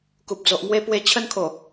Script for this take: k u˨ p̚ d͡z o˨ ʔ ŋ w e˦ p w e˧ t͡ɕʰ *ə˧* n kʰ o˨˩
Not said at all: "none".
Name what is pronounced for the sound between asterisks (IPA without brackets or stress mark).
ə˦